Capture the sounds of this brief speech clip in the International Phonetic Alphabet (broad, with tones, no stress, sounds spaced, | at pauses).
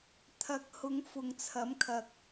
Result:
t̪ʰ ɐ˨ k̚ h ʊ˨˧ ŋ f ʊ˨ ŋ t͡sʰ ɐ˨˥ m kʰ ɐ˨ k̚